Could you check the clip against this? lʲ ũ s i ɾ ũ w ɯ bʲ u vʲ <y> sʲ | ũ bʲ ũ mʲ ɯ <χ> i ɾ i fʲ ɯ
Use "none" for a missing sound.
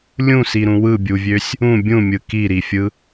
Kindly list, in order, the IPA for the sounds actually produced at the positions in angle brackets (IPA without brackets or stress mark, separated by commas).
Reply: ø, k